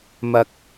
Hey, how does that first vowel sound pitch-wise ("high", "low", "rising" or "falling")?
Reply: high